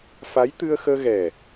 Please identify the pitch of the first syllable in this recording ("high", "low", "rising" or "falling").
rising